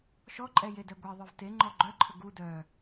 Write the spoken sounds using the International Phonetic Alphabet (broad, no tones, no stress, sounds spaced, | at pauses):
ʃ ɔ ǃʼ ɛ j e d ɛ ɡʷ e ðˤ œ v t e ŋ͡ǃ ɔ ɡ͡ǃ œ ǃʰ ə ɡ u d œ